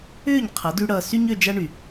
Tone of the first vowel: falling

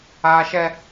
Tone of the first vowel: high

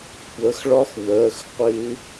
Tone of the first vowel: rising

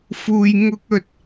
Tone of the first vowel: low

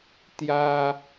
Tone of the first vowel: high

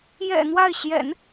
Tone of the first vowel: low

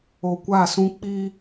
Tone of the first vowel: low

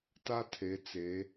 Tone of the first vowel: high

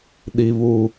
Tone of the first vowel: low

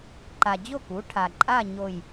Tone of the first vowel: low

